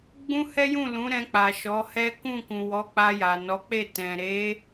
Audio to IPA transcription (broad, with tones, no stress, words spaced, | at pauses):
ɡ͡bũ˦hɛ˦jũ˦˨ lũ˨˦ɾɛ̃˧k͡pa˨ ʃɔ˨˦hɛ˦ kũ˦˨kũ˨wɔ˨˦k͡pa˧ ja˨nɔ˨˦k͡pe˦˨ tɛ̃˨ ɾe˨˦